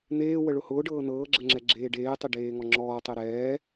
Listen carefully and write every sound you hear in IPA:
n̪ eː w ə ɭ ʊ h ʊː ɖ ɤː n ɤː ɡ͡ǁ ə ŋ͡ǁ ɛ ɡ͡ǁ eː ɖ eː tˤ e ɖ eː ŋ ɔ ŋ͡ǁ ɔː tˤ e ɾ ɛː

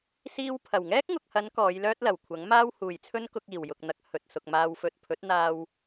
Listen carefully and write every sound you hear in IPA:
s iː˧ w pʰ ɐ˨˩ w ŋ ɛː˥ k̚ ŋ ʊ˨ k̚ h ɐ˨˧ n k ɔː˨˧ j l œː˥ t̚ l ɐ˨˩ w kʷʰ ɐ˨˥ ŋ m aː˥ w h uː˨ j t͡sʰ ɵ˥ n k ʊ˧ k̚ iː˨˩ w j ʊ˨ k̚ n̪ ɐ˨˥ k̚ h ɵ˨ t̚ s ʊ˨ k̚ m aː˨ w f ɵ˨ t̚ pʰ ɵ˨˥ t̚ n̪ aː˧ w

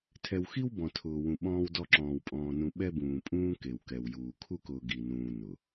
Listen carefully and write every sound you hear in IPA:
tʰ ɛ˨ w x i˦ w b ɔ̃˨ tʰ ʊː˨ w ũ˨ ɓ ɔ̃ː˦ w d ɔ˦ ǁ ɔ̃ː˨ w pʼ ɔ̃ː˨ n ũ˨ ɓ ɛ˦ b ũː˨ pʼ ũː˦ k e˨ w k ɛ˨ w j uː˨ kʰ u˦ k ʊː˨ ɡ i˨ n ũː˨ n ʊ˨

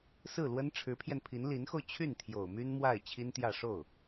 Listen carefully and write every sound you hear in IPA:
s ɹ̩˥˩ l w ə˥ n ʈ͡ʂʰ ɻ̩˧˥ pʰ j ɛ˧ n pʰ i˧˥ n l i˧˥ n x o˧ ʊ̯ t͡ɕʰ y˥˩ n t̪ʰ j o˨˩ ʊ̯ m y˥ n m w a˥˩ ɪ̯ t͡ɕʰ i˥ n t̪ j ä˥˧ ʂ o˥˩ ʊ̯

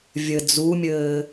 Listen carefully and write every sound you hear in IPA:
vʲ ɘ d͡z u mʲ ɘː

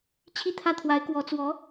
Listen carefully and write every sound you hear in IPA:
t͡ɕʰ i˥˧ t̪ʰ ä˥˩ t̪ʰ w a˧˥ ɪ̯ k w ɔ˧˥ t͡s w ɔ˧˥

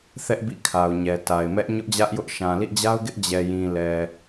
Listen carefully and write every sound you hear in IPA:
θ ɛ˦ ʔ b ḭ˦˨ kʰ a˨ ʊ̯ ɲ ɛ˨ t a˨ ɪ̯ m ɛ˦ ʔ ɲ ʊ˦ ʔ d͡ʑ ä˦ ʔ j ʊ˦ ʔ ʃ ã˨ l ḭ˦˨ d͡ʑ a˦ ʊ̯ ɡ ɪ˦ ʔ d͡ʑ ɛ˨ j ĩ˨ l ɛ˨

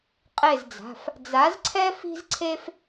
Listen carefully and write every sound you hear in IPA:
qʼ e˦˨ z d͡z a̤˩˧˩ f | d͡z a˨˥ z ǀʰ ɛ˥ f i̤˥ z ǀʰ e˥ f

